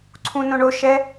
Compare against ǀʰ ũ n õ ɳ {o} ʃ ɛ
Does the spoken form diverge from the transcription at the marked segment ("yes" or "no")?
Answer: no